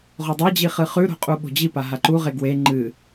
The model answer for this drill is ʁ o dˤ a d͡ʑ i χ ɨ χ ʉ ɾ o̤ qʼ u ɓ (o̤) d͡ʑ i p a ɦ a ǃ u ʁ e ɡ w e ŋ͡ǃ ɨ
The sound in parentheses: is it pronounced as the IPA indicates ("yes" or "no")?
yes